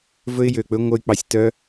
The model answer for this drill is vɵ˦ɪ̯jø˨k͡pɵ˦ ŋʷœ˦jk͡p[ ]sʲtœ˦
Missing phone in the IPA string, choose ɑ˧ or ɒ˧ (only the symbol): ɑ˧